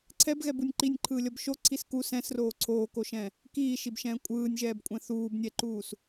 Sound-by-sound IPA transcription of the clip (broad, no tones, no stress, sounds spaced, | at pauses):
ǀʰ ɛ b ɣ ɛ b u nʲ ǃ i nʲ ǃʰ ɯː lʲ ʌ b ʃ o ǀʰ i s k u s ɛ̃ s r oː ǀʰ oː k o ʃ ɛ̃ | k iː ʃ i b ʃ ɛ̃ː kʷʼ ɯː nʲ ʒ ɛː b kʷʼ ɛ̃ θ uː b nʲ ɛ ǃ uː s